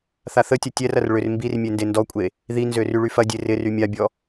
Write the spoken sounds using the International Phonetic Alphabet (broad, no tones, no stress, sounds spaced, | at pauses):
θ a θ ə tʲ ɐ tʲ ɛ r ɐ r ɭ ʏ r m b i r mʲ e n d e n d ɔ kʷʼ e | ð i n z ø r y ɭ y f ɐ dʲ e r ɪ r y mʲ a bʲ ɔ